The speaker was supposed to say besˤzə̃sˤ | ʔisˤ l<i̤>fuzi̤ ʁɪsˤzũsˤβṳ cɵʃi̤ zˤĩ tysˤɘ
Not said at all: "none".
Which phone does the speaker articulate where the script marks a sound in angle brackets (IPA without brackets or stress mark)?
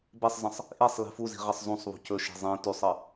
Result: i̤